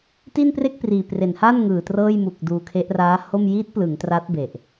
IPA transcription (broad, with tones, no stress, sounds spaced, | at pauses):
t i˥˩ n p r e˥˩ k̚ p r iː˨˩ p r e˨˩ n h a˥˩ n ŋ ɯː˨˩ t r ɤː˥˩ j m u˨˩ k̚ d uː˧ kʰ e˦˥ ʔ r aː˦˥ h o˥˩ m j i˦˥ t̚ p l ɯ˩˦ ŋ t r a˦˥ t̚ b e˨˩ ʔ